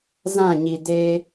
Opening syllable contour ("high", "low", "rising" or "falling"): falling